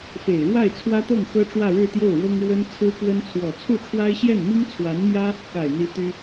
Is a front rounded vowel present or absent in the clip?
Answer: present